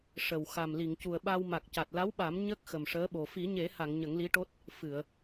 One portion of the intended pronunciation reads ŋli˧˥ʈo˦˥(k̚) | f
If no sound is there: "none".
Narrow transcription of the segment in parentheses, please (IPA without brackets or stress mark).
t̚